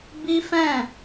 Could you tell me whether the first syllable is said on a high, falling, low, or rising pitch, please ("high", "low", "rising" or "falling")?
high